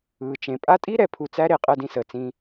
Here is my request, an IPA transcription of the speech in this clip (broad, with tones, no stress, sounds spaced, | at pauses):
ɯː˩ t͡ʃ ẽ˩ pʼ a˦ tʼ i˥ ɾ ɛ˨ pʰ u˨ t͡s æ˦ ɾ e˨ qʼ ɜ˨ d ĩ˨ s əː˩ t͡s ĩ˨